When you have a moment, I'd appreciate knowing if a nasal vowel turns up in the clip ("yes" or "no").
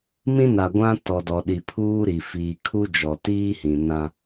yes